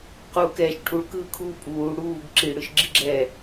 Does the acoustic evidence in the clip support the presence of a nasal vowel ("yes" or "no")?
no